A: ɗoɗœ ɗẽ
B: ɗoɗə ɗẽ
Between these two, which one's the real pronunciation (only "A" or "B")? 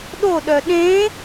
A